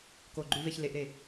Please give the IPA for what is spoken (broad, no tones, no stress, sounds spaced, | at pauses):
k o ɡ͡ǃ ʉ v e ç l e ʔ ɾ e